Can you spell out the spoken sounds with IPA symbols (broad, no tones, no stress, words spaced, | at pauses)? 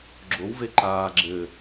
ɡ͡ǁowve ǃaː ɡ͡ǁɘ